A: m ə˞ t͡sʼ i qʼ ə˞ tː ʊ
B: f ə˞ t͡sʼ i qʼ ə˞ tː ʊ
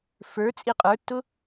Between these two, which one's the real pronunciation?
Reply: B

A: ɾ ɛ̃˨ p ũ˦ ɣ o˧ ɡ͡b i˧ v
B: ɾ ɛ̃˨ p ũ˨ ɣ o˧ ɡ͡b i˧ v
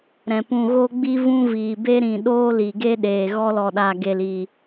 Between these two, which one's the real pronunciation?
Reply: B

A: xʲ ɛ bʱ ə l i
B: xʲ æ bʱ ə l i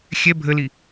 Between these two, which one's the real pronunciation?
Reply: A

